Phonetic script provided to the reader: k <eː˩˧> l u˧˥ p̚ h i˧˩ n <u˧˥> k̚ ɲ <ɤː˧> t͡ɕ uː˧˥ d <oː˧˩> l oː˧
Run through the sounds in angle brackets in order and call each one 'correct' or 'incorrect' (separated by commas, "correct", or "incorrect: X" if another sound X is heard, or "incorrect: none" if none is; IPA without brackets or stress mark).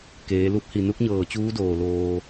correct, correct, incorrect: ɤː˧˩, correct